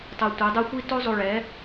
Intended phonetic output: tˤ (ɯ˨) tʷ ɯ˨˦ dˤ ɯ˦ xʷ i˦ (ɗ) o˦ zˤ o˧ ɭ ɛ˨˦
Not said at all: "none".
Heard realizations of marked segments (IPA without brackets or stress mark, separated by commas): ɯ˨, t